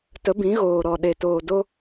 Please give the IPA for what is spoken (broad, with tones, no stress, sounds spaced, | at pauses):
t ə˨˦ b ĩ˨˦ ɣ oː˨ ɾ ɔ˨ ɗ e˨ t oː˨ d o˧